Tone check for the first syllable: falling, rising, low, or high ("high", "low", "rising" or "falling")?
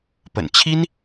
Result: low